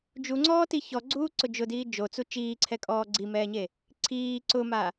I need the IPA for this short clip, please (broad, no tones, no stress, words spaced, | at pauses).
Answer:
d͡ʒuŋ͡ǀɔːti çɔɡ͡ǀuːǀʊ d͡ʒʊdiː d͡ʒot͡su t͡ʃiːǀʰɛkʼɔː ɡ͡ǀimɛːɲe | ǀʰiː ǀʊma